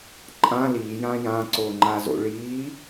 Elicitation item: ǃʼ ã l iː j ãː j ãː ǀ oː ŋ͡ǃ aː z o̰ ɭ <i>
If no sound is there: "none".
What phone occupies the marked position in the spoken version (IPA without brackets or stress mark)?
iː